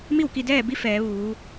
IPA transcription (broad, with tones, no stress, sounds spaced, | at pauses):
m i˥˨ w k i˧ d ɛː˥˨ b i˧˥ f ɛː˩˧ ʋ uː˩˧